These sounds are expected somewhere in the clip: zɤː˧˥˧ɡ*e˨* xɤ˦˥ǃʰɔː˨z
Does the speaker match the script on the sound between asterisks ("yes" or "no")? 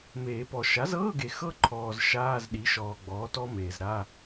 yes